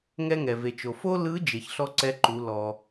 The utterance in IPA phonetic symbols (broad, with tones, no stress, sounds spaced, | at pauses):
ŋ ɛ˥ ŋ ɛ˩ v e˩ t͡ʃ o˩ f o˥ l ɯ˧˥ d͡ʒ e˩ ç ɬ ɔ˥ ǀ ɛ˧˥ ǃ u˩˧ l ɔ˩